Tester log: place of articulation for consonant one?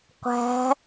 uvular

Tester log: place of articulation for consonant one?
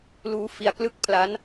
alveolar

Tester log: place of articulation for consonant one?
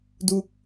alveolar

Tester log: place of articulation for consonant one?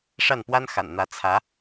retroflex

